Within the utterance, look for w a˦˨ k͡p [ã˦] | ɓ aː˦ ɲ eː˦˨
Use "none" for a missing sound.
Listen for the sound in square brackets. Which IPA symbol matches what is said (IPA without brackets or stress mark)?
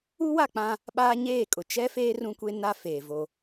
ã˦